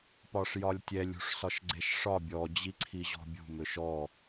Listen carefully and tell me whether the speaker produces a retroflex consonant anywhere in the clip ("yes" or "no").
yes